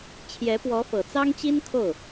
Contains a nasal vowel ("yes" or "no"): no